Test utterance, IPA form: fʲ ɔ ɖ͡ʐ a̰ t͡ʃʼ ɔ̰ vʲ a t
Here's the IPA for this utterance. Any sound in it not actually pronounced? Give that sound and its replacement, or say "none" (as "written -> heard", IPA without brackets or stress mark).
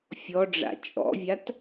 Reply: none